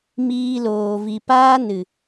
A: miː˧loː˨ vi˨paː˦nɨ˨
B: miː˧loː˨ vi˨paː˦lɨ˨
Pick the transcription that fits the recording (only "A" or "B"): A